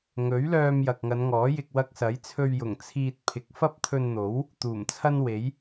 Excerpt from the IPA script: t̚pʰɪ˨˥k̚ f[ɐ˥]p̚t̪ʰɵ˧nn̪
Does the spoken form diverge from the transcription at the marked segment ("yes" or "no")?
no